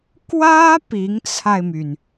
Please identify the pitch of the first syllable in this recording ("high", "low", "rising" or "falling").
high